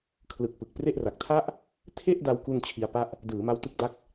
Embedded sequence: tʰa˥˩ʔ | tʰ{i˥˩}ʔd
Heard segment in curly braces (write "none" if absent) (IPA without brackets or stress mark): e˥˩